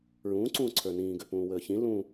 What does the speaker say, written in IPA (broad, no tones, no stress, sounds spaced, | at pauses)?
ɹ ũː ǀ ũː ǀʰ ə˞ n ĩː ɡ ø p ũː w əː ç ĩ l ũ